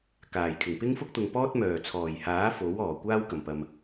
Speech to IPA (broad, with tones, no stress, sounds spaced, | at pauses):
k aː˨˩ j kʰ ɪ˨˩ ŋ p ɪ˥ ŋ f ʊ˥ k̚ t̪ ʊ˨ ŋ p ɔː˥ t̚ m œː˨˩ t͡sʰ ɔː˨˩ j h aː˨˥ f o˨˥ w ɔː˨˩ kʷ aː˥ w k ɐ˨˩ m p ɐ˨ m